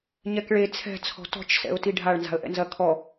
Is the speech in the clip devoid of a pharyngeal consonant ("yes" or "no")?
yes